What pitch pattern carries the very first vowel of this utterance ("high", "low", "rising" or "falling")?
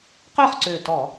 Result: falling